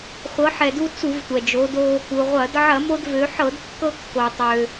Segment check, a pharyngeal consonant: present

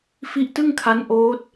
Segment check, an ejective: absent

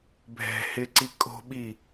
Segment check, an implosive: present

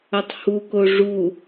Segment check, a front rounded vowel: absent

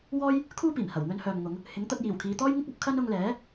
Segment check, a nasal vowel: absent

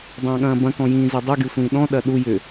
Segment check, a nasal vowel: present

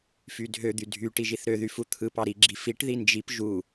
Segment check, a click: present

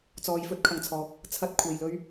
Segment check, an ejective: absent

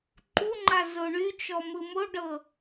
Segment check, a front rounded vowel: present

